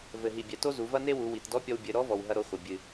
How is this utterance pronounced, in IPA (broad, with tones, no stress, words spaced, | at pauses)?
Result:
vɘ˩ɦi˩ bʲɛ˩to˥zu˩˧vɐ˥ ne˥wu˩˧ wi˩tdɔ˧˥pʲɔ˧w bʲɘ˩˧ɾɔ˧˥vɔ˩w ɦɐ˧ɾo˧χʷɐ˩ bʲɨ˩